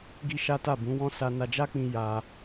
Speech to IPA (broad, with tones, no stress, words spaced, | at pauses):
ɡi˦ʃa˦ta˦˨ bũ˨˦wɔ̃˦ sa˦ na˧d͡ʒa˦k͡pĩ˧ ja˧